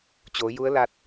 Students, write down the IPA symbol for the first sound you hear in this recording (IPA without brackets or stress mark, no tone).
t͡ɕ